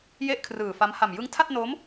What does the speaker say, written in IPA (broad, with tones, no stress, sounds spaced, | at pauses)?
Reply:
j e˥˩ ʔ kʰ r ɯː˨˩ f a˦˥ m h a˨˩ m j ɯ˦˥ ŋ tʰ a˥˩ t̚ n o˦˥ m